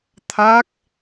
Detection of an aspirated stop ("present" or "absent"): present